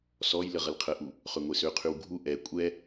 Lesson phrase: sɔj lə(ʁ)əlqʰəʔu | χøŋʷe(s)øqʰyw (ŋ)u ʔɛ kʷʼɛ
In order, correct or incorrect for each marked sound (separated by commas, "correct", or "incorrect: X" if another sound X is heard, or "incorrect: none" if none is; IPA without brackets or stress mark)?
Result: correct, correct, incorrect: ɡʱ